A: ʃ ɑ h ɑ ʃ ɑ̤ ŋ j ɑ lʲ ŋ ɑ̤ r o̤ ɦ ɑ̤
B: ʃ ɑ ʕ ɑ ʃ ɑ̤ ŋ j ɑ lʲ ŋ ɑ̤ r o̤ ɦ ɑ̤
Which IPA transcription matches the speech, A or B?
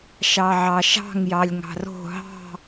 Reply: B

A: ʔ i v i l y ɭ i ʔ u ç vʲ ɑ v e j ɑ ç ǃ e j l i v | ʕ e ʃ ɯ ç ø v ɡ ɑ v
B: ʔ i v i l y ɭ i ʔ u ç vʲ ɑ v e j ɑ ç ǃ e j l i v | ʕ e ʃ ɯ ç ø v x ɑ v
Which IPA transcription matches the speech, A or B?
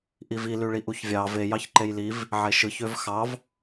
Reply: B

